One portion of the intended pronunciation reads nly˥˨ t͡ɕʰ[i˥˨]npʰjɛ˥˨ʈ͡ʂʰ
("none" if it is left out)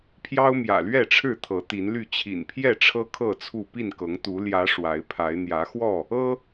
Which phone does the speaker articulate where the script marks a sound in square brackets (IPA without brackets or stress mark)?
ḭ˨˩